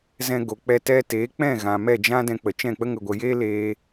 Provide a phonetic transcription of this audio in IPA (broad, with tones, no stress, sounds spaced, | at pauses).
z ɛ̃˧ ɡ o˨ k͡p ɛ˧ t ɛ˧ t eː˨˦ k͡p ɛ̃˦˨ ɣ ã˨ m ɛ˦˨ d͡ʒ ã˦ d ɛ̃˧ k͡p ə˨ t͡ʃ ɛ̃˦˨ k͡p ə˦ ŋ ə˨ ɡʷ ə˨ j eː˦ l eː˦